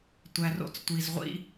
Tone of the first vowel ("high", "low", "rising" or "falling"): low